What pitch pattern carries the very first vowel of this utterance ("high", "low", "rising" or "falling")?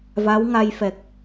rising